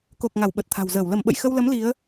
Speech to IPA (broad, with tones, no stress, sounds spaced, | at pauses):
k o˨˩ k̚ ŋ a˧˩ w ɓ ə˨˩ t̚ t̪ʰ a̤˨˩ w z əː˧˩ w l ə˧˩ m ɓ ə̰˧˨ j x ə˧ w l ə˨˦ m l i˨˦ ə̯